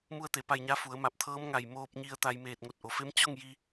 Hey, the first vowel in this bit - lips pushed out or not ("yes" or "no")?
yes